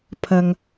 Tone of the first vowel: low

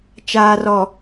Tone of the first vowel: low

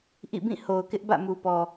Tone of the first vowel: falling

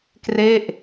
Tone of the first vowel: falling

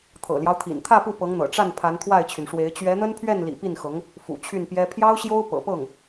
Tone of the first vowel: low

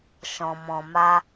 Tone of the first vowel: low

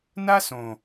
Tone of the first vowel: high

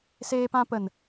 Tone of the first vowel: high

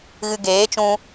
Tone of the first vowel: low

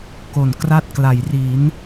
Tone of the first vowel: low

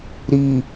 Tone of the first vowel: low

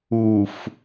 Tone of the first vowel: low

